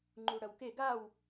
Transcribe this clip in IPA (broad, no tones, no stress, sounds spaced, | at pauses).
ŋ͡ǃ u ɽ ɐ w k e ɡ a w